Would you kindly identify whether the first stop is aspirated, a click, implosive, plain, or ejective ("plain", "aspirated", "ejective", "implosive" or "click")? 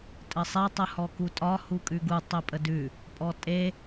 ejective